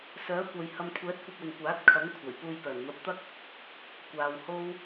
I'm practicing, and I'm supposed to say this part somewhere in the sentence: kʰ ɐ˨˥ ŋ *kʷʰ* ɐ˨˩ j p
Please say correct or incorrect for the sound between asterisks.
correct